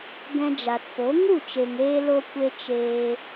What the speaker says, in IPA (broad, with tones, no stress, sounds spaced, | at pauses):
ɡ ɛ̃˧ d͡ʒ a˨ t p o˨˦ ŋ u˦˨ t͡ʃ e˨ ŋ e˧ l o˦ kʷ e˦ t͡ʃ eː˧